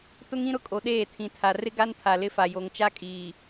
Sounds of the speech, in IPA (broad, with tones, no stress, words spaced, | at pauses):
tʊ˦ŋĩ˦ɾʊ˦ kʼo˨ɗeː˦˨ tʰĩ˨tʰa˨ rɪ˦ɡa˦n tʰa˨lɪ˦ fa˨jo˨ŋt͡ʃa˦ kʼiː˨